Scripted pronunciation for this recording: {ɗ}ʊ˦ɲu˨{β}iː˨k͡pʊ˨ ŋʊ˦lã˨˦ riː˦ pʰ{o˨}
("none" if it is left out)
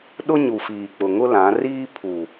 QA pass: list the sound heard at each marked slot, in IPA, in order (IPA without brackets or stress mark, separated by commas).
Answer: ɗ, f, u˨